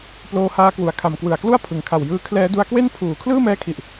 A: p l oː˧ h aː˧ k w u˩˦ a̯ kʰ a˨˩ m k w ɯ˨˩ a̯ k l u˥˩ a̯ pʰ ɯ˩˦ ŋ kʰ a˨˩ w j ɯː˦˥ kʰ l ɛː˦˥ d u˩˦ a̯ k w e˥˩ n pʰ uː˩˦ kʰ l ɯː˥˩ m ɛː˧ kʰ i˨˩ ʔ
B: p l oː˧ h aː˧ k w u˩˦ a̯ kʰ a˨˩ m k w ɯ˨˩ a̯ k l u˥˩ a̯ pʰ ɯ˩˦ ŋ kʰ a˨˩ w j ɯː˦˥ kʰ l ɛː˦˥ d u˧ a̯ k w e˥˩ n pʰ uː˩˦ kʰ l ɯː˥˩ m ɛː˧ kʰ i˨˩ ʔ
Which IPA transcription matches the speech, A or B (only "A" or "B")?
B